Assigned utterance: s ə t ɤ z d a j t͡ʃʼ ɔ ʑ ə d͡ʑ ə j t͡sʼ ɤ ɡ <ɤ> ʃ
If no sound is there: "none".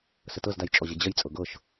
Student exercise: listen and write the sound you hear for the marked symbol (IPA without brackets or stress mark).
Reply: ɤ